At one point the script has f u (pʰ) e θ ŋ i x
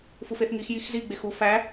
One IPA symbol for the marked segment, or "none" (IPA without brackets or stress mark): f